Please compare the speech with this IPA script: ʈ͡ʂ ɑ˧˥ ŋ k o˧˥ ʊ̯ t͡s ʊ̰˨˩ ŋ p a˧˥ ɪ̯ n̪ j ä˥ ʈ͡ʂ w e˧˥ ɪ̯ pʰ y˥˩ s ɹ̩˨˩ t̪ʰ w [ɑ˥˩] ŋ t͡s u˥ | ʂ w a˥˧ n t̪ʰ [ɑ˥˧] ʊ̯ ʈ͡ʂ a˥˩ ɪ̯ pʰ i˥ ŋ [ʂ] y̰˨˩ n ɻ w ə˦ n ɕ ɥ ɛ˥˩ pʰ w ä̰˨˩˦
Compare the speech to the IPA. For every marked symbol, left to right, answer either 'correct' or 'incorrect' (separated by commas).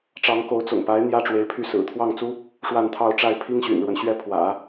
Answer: correct, correct, incorrect